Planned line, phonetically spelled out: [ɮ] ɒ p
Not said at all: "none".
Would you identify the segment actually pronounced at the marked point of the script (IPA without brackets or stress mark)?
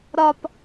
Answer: ɾ